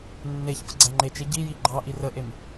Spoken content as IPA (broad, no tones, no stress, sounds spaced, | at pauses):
nː e ç p ə ɡ͡ǀ æ ŋ͡ǃ e t͡ʃ e ɟ i j i ɡ͡ǃ ɑ ʔ i r ə ʔ e m